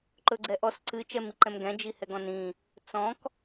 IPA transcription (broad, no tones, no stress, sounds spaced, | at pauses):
ǃ ɵ ɡ͡ǀ ɛ ʔ ɔ s ǀ ɨ t͡ʃ ɛ m i ǃ ɛ̃ m ɡ ɛ̃ d͡ʒ i h ɛ ɡ ɔ̃ n ĩ | t͡s ɔ̃ k